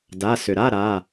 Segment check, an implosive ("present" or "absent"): absent